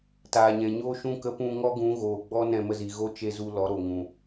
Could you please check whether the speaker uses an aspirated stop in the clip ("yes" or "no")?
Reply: no